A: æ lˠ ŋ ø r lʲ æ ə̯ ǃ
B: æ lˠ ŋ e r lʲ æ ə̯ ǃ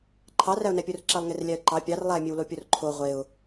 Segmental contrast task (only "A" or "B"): B